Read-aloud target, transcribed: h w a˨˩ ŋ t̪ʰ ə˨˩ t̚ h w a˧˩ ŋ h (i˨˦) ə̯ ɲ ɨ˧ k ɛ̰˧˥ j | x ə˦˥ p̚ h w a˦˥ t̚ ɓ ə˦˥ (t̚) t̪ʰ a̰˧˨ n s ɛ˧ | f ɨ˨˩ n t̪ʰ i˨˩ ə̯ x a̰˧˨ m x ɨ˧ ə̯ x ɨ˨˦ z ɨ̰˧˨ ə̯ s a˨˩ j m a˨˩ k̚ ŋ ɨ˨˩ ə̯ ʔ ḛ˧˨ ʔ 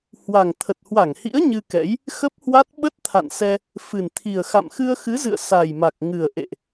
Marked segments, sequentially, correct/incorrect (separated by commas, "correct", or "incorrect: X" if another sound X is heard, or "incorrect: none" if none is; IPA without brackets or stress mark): incorrect: ḭ˧˥, correct